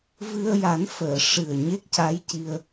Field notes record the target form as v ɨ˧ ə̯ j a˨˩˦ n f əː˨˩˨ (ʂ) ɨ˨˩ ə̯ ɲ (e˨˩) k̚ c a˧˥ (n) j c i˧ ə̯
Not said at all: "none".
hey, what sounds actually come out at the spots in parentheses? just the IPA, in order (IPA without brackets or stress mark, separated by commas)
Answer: ʂ, e˦˥, none